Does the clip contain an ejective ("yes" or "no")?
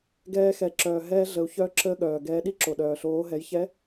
no